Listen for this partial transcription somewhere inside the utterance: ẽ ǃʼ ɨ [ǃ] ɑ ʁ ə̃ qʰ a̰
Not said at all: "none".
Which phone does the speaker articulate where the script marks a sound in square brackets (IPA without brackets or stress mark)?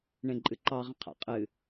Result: ǃ